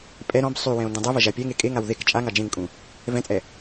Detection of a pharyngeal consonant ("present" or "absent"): absent